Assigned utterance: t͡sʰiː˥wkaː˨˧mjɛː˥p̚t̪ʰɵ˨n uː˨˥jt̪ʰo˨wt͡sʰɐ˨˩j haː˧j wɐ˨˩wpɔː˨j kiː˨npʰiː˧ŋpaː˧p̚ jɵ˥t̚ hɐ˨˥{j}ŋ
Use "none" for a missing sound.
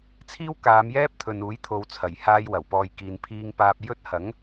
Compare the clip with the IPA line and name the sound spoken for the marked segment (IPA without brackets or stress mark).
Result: none